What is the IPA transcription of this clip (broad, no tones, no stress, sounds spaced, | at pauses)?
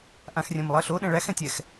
ʔ ã x rʲ ɛ̃ m lˠ ɜ ɬ o ɗ ɛ̃ ɭ æ x ɛ̃ tʲ ɛ x